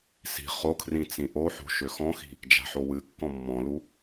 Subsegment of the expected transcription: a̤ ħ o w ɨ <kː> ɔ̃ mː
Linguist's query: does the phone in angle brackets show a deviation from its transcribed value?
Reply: no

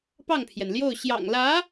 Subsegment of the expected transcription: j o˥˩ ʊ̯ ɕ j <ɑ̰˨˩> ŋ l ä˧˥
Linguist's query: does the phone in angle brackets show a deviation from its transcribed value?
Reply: no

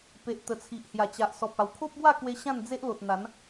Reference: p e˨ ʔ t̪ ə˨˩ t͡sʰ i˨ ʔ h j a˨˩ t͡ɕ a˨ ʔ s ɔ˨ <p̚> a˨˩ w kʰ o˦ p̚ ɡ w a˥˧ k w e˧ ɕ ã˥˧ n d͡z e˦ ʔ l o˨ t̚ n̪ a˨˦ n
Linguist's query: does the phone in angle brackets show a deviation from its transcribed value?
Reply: no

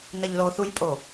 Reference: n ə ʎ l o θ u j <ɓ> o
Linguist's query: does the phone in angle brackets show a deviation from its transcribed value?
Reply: yes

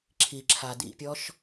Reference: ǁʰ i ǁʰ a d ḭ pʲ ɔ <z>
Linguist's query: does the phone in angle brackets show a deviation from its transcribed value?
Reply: yes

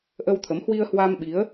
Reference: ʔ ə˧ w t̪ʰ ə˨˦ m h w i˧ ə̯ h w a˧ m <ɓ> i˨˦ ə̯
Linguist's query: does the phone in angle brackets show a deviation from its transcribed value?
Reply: no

